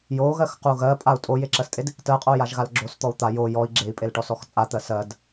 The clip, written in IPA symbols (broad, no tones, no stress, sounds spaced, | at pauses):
j o ɣ ɜ x q u ɣ ɜ pʼ a u̯ tʼ o j e ǁ ɜ s tʼ e d | t ɜ qʼ o j a ʒ ɣ a l ɡ͡ǁ o s t̪ ɔ u̯ t̪ a j o j ɔ i̯ ɡ͡ǁ e i̯ pʼ e l ʈ ɔ s ɔ x t͡sʼ a t̪ ɜ s ɜ d